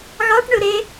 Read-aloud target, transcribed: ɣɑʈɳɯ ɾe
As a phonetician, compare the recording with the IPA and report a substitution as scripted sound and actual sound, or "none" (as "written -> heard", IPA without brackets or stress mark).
none